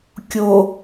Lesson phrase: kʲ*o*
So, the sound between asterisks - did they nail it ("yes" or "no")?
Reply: yes